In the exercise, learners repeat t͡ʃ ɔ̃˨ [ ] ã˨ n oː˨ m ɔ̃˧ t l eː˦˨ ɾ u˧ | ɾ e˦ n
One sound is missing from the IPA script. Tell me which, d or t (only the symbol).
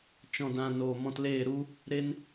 d